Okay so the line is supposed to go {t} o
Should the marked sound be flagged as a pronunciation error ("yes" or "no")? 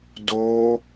yes